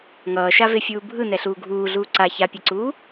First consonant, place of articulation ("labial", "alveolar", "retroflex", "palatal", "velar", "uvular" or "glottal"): velar